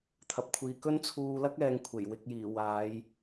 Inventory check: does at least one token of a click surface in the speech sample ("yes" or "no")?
no